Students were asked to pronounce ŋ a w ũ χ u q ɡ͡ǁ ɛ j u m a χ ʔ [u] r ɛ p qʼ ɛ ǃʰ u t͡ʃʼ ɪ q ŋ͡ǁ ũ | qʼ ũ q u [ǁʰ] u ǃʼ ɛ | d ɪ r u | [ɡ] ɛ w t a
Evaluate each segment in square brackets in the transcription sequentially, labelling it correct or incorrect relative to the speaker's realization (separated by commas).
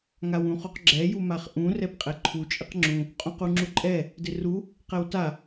incorrect, incorrect, incorrect